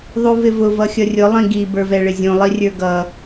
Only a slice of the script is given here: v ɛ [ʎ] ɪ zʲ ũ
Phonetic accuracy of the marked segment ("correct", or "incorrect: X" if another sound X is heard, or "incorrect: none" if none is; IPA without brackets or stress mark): incorrect: ɭ